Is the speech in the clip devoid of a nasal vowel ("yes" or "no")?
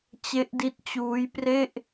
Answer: yes